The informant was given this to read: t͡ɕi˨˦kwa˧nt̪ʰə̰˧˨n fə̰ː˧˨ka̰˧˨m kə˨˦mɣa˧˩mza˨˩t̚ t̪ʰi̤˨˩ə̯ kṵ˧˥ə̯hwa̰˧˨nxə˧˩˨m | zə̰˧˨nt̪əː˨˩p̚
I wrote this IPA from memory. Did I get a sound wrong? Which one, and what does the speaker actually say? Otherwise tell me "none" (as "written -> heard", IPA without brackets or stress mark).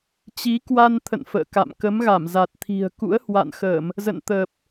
none